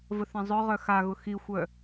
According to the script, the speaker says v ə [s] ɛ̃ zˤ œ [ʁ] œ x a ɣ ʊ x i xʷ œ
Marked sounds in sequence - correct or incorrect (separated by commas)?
incorrect, correct